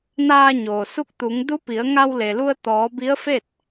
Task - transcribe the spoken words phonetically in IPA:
naː˧ ɲoː˩su˧˥k̚t̪u˩˧ŋ du˧˥pi˩˧ə̯ ŋa˧wle˩lu˧ə̯ t̪ɔː˩˧ bi˧˥ə̯fe˥˨t̚

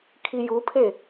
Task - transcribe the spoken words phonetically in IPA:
kʰijupʰe

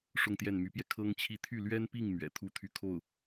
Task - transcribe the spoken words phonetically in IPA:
ʂʊ˥˧ŋt̪jɛ˥˩nmy˧˥pjɛ˧ kʰɤ˥ŋt͡ɕʰi˥˧ t̪ʰy˥˩lɥɛ˥npi˥˩ŋ mɥɛ̰˨˩t̪ʰu˥t̪ʰy˥˧ kʰo˥˩ʊ̯

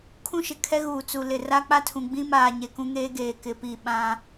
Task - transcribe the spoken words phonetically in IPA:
kʰũ˦ʃɪ˨kʰɛ˦ ɣuː˨t͡su˨lɪ˨ ra˦k͡pa˦tʰũ˨ ɡ͡bĩ˦maː˨ ɲe˨kũ˦ŋeː˦ ɡeː˨kɪ˨˦piː˨ ɓã˦

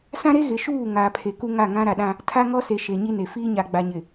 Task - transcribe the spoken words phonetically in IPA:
sã˦ɾe˦ ɣɪ˨ʃuː˦˨ ŋaː˨pʰe˨ku˦ ŋa˦˨ŋã˦ ɾa˨ɗã˦ | tʰa˦ŋɔ˦se˨ ʃe˨ɲi˦ne˨ fiː˦ɲa˨ɡ͡ba˨ɲɪ˨

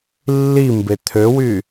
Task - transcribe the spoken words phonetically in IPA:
lːimbe t̪ʰøwy

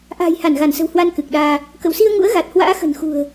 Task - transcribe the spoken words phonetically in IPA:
ʔa̤ː˨˩jha˧˩nɣa˧˩nsə̤˨˩w hwa˧n kɨ˨˩k̚ɗaː˧ | kə̰˧˨wsi˧ə̯ŋṵ˧˥ə̯ɣa˨˩t̚ hwa̰ː˧˥xə̤˨˩nxṳ˨˩ə̯

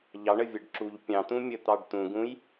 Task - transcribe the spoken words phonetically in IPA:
ʎɑɳəvʲɐɖ ǁuʎ pʲɑ̃t̪ũmʲət̪ɑɖ t̪ũɡũj

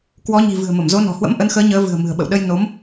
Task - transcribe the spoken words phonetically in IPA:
kwɔ˨˦ɲi̤˨˩ vɨ̤˨˩ə̯mə˧˩mzo˨˦ nɔ̤˨˩hwə̰˧˥mʔə˨˦nxəː˨˦ ɲəː˨˦ vɨ̤˨˩ə̯mɨ̤˨˩ə̯ɓə̰˧˨wɗə˧j no˨˦m

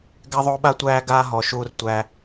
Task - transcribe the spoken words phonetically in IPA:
ɡæ˧ðˤoː˧ɓa˧ tʷæː˧ɡaː˧ ɦɔ˨ʃuː˧rtʷæː˧

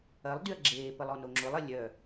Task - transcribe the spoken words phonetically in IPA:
ɐlˠdyɐ̯ ɡ͡ǁeːpəlˠ ɔnoŋ͡ǁʊlˠɐ lʲœ

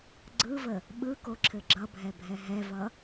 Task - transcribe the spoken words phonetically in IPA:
ɡ͡ǀɯvə | ɓɯkoǁʰɘ ɡ͡ǁʌbʱɛbʱɛ ɦɛvʌ

